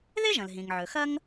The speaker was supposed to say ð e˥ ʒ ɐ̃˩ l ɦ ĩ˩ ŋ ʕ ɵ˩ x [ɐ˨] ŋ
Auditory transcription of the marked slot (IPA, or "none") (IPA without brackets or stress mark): ɐ˦